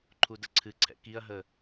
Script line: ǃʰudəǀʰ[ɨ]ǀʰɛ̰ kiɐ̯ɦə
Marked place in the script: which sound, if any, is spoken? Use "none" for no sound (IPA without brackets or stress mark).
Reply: ɨ